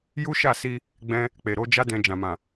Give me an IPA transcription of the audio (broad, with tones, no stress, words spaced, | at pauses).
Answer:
ju˦ʃa˦˨si˧ | ɡ͡bɛ̃˦ | k͡pe˨ ɾo˨˦d͡ʒa˦ dɛ̃˧d͡ʒã˨mã˨